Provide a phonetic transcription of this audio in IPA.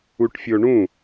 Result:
u ʈ fʲ o ɳ ũ

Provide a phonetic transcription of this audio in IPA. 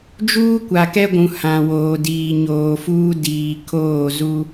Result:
d͡ʒ uː˦ kʷ a˨ k ɛ˦ ɡʷ ũ˨ h ã˨ w oː˨ d iː˨ ɲ oː˨ f uː˦ d iː˨ kʰ oː˦˨ z u˦

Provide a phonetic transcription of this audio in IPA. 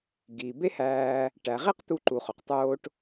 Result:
ɡ i˩ b e˥ h æː˧ | ʈ æ˩ ʁ e˥ q t̪ u˧ ǃ u˩ χ o˩ q tˤ oː˧ ʈ

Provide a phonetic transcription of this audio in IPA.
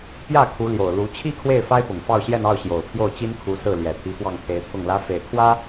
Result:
p j ä˥˩ kʰ u˧˥ l j o˨˩ ʊ̯ l u˧˥ t͡ɕʰ i˥ kʰ w e˥˩ ɪ̯ f a˥ ɪ̯ p ʊ˨˩ ŋ f ɑ˥˧ ʊ̯ ɕ j ɛ˥˧ n ɑ˥˩ ʊ̯ ɕ j o˨˩ ʊ̯ pʰ j o˥˩ ʊ̯ t͡ɕ i˥ n kʰ u˧˥ s ɹ̩˥˩ l j ɛ˨˩ t̪ʰ i˧˥ f w ɑ˥˩ ŋ t̪ʰ e˧˥ ɪ̯ t̪ʰ ʊ˥˩ ŋ l ä˥ f e˨˩ ɪ̯ kʰ w ä˥

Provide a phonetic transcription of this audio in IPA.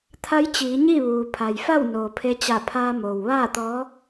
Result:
t̪ʰ a˧˥ j t͡ɕ iː˩˧ ɲ i˥˨ ʋ uː˩ pʰ a˩ j f a˥˨ w n oː˩ pʰ e˧ t͡ɕ a˧˩ pʰ aː˧ m oː˩ w ʋ aː˥˨ t̪ ɔː˧˥

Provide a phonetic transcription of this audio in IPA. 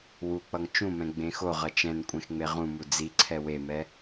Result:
w u k͡p ʌ ŋ t͡ʃ ũ m ɛ̃ ɡ͡b ẽ x o ʁ ʌ t͡ʃ ɛ̃ n kʷʼ ẽ x ŋ͡m e ʁ ũ m u d͡z i ǀʰ ɛ w e m ɛ

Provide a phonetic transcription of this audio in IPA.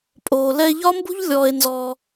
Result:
pʼ oː˧ l ɛ˧ e̯ ʎ ɒ˦ m b ṳ˦ ʎ lʲ ɔː˧ e̯ n z ɔː˧

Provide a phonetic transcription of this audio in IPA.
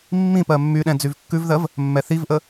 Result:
mː ĩ p ɜ mː y ɗ ɛ̃ d͡z y v kː ʉ v ð ɜ v | mː ɛ θ i v ʔ ə

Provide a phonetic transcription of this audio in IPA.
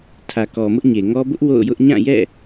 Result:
tʰ ä˨ k ɔ˨ m ʊ˦ ʔ ɲ e˨ ŋ ɔ˦ b ʊ˦ ʔ w o̰˦˨ ʊ̯ j ʊ˦ ʔ ɲ ã˦˨ j ɛ̰˦˨

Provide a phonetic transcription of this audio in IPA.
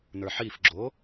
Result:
n ə˞ ħ i f ɡ͡ǁ o

